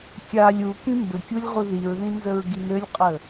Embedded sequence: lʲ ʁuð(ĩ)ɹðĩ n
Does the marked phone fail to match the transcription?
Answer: yes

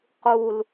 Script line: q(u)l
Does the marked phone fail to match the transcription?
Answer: no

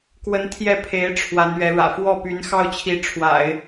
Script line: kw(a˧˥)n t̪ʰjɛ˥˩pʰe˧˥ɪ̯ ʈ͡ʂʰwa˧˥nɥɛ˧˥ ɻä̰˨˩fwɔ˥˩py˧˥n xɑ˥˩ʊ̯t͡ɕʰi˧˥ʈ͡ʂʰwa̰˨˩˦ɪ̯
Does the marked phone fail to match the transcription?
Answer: yes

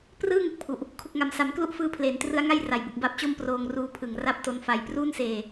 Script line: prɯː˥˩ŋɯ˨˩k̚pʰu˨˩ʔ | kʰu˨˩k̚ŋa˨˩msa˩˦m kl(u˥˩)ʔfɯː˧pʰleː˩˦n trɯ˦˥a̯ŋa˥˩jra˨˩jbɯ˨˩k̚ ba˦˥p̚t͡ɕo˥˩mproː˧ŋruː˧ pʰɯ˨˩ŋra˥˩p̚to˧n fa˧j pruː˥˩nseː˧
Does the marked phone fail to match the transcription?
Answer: no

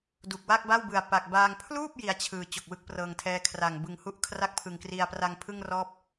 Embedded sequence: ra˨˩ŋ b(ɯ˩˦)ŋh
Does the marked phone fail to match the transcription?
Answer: yes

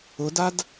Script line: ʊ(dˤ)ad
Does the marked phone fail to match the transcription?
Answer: yes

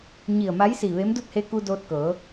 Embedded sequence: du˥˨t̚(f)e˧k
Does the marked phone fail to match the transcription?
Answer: yes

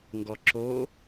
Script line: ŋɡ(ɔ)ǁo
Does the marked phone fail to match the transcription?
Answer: no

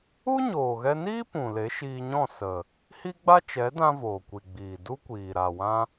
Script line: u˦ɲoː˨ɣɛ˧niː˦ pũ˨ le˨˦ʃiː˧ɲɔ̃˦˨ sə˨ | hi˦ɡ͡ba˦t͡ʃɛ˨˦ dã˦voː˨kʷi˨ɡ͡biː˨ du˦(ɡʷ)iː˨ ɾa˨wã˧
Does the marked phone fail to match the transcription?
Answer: yes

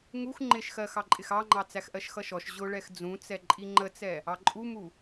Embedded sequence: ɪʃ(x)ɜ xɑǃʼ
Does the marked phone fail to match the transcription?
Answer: no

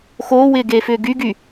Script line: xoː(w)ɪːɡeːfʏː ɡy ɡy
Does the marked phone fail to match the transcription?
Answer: no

